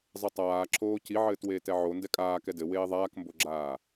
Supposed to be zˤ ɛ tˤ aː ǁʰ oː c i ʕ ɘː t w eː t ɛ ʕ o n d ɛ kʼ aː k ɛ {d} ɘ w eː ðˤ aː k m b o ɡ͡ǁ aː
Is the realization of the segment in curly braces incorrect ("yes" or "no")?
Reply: no